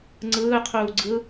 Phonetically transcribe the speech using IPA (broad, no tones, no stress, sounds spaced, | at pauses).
ŋ͡ǀ ɯː qʰ uː ɡ͡ǀ ɯ